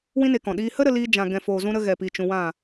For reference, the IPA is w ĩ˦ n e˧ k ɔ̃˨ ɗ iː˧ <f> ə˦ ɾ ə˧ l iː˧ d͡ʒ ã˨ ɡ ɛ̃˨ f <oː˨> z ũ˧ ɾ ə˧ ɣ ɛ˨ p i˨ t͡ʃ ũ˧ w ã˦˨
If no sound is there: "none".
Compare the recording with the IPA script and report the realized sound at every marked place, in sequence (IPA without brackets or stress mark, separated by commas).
h, oː˨